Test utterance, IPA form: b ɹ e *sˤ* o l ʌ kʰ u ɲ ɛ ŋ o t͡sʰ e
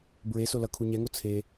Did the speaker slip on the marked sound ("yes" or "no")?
yes